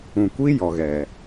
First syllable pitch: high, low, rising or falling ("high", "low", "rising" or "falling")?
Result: low